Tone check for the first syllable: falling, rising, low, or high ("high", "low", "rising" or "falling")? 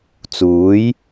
rising